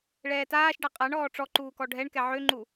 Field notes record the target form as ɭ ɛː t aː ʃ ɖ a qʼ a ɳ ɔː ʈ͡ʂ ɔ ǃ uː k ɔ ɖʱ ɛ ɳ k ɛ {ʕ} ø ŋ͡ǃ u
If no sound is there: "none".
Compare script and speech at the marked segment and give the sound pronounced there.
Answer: ʕ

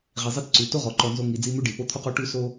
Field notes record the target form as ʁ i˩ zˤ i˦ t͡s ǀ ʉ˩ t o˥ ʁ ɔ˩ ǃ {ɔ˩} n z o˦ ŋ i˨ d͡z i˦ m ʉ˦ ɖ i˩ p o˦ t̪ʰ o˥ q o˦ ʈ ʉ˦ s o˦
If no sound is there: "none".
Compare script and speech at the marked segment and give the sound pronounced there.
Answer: ɔ˨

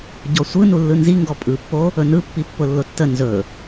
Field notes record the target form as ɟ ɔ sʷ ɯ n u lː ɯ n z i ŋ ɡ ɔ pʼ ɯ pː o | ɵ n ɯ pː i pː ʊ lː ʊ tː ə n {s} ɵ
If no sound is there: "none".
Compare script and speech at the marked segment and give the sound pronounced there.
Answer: z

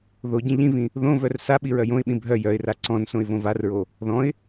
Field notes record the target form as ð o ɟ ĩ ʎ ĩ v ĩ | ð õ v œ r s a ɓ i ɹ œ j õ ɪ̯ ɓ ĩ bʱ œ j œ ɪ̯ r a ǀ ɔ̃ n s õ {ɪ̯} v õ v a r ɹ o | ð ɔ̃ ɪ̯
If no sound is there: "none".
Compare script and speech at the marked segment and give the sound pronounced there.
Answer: ɪ̯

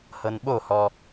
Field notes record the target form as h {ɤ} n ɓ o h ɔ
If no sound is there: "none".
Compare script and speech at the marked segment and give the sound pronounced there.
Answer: ɤ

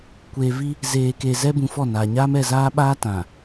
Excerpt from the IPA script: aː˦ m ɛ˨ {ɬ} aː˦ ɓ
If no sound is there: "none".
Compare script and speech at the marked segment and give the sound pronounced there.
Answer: z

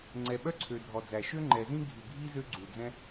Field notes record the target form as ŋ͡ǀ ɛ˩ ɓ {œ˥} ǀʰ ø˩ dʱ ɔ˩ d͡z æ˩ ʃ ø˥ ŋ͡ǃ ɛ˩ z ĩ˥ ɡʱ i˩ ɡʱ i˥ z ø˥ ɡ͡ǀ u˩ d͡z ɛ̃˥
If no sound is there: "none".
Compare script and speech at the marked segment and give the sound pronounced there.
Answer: œ˥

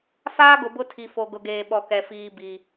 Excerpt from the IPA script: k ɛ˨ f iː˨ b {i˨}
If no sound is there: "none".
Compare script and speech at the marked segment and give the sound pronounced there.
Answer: i˨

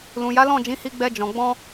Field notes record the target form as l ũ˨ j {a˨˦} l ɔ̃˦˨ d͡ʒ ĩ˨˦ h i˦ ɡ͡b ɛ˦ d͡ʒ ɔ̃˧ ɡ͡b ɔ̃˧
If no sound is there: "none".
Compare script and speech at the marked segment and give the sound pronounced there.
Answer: a˨˦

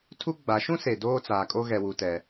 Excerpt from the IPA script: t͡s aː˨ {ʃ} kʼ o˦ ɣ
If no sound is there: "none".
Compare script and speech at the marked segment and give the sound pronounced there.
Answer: none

